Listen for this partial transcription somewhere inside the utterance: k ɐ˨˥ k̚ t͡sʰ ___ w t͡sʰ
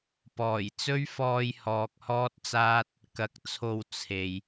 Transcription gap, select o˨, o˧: o˧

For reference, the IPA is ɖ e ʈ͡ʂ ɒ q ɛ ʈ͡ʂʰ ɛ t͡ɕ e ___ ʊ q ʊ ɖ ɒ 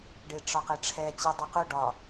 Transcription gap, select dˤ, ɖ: dˤ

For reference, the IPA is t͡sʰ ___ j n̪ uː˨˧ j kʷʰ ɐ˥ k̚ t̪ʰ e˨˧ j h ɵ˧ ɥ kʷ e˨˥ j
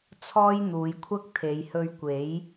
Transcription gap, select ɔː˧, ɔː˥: ɔː˥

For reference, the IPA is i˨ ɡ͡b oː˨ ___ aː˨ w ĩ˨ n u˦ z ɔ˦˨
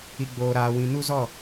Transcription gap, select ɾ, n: ɾ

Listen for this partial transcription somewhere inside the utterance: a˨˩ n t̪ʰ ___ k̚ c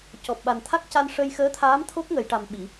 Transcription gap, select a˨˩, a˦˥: a˦˥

